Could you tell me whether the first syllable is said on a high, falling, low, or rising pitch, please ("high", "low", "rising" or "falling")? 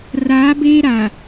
rising